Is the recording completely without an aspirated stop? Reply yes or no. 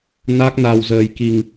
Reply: yes